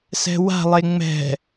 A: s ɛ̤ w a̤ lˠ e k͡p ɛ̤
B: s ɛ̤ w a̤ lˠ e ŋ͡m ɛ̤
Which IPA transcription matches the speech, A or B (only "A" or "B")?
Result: B